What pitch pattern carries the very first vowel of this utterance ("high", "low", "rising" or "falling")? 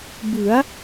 rising